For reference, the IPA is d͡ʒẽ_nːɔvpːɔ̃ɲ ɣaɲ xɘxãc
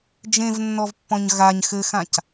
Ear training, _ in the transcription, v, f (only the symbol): v